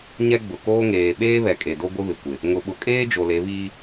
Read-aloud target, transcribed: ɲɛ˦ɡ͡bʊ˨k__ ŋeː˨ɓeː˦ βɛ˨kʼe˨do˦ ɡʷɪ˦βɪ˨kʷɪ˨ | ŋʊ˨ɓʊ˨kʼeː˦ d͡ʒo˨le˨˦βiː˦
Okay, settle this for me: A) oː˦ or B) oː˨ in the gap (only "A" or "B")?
A